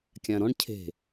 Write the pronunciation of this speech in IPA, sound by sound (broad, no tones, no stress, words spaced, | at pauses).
kʲãɾɔ̃ɳ cʰe̤